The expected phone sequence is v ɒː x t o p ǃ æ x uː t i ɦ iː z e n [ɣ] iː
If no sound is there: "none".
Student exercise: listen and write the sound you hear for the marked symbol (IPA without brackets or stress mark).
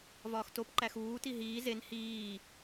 h